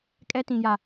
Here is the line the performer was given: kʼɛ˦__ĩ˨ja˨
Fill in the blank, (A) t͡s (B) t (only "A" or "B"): B